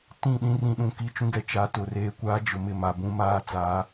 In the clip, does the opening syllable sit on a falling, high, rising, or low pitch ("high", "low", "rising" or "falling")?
falling